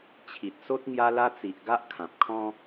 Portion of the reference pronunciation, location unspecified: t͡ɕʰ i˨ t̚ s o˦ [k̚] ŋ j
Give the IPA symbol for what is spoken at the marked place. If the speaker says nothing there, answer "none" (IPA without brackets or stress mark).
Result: t̚